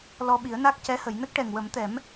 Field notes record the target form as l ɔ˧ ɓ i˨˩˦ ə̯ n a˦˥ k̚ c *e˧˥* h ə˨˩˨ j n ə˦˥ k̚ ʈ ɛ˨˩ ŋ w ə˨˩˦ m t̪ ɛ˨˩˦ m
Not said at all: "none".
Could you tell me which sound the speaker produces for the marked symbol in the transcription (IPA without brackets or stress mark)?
ɛ˧˥